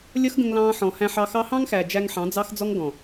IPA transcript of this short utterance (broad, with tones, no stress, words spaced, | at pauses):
lʲʌ˦xɡə̃˧ŋlɑ̃ː˧ ħɔ̃˨ hæ̃˧ħɑ˧xɑ˦ hɑ̃˦ŋxæ˨ d͡ʒæ˧ŋħɑ̃˨˦ d͡zɑ˦xd͡zɔ˦ŋ ɡɔ̃˨